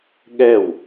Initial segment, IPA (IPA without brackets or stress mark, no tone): ɠ